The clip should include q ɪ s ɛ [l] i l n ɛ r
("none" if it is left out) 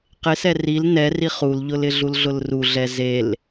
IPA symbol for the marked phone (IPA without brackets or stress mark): r